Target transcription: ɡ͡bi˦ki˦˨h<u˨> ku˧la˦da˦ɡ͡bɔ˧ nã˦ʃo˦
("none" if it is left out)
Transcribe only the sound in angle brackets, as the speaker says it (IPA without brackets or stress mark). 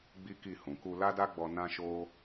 ũ˨